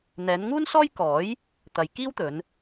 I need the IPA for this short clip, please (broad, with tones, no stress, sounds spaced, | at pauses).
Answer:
n̪ ɛː˨˧ n ŋ uː˥ n s ɔː˥ j k ɔː˨˥ j | t̪ ɐ˨ j k iː˥ w t̪ ɵ˨˧ n